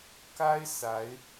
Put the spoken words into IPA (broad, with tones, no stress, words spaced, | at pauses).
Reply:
ka˥ɪ̯ sa˧˥ɪ̯